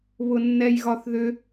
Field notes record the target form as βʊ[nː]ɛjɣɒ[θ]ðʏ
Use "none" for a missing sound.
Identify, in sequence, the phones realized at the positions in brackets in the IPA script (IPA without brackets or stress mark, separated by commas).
nː, θ